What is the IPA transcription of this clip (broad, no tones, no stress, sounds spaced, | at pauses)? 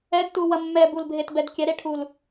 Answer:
ɛ d t u w ɐ mː ɛ b u l bʱ e t b ɛ d kʲ ɛ ɾ e ʈʰ u l